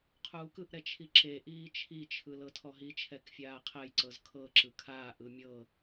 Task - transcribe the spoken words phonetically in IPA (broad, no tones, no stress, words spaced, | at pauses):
qʰuːkɯʔɾɛ t͡ʃʰiǁeʔiː t͡ʃʰit͡ʃʰɯ lɤtʰɔɦit͡ʃʰɛk fʲaːqʰɛjǀɤz kʰɤǁɯ kʰaːʔɯ mʲɤ